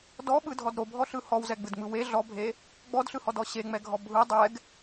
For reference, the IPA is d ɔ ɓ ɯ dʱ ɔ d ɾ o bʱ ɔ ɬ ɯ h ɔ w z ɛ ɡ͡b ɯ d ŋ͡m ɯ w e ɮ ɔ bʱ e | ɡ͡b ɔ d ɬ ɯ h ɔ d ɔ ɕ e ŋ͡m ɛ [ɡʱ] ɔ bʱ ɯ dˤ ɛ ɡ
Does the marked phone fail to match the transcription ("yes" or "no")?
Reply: no